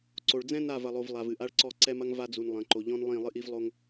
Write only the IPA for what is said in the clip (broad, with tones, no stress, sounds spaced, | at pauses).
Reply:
ǀ o˨ ɭ d͡z ɛ̃˦ n a˦˨ v ɐ˨ lˠ o˨ v lˠ a˨ v ɨ˨ ʔ a˦ ɭ ǀ ɔ˦˨ ǀ ɛ˦ m ɐ˦ ŋ v a˦ d͡z u˨ n lˠ ɐ̃˨ ǃ o˨ ʎ ɔ̃˦ n lˠ ĩ˦˨ lˠ ɨ˦ ʔ i˦ v lˠ o˦ ŋ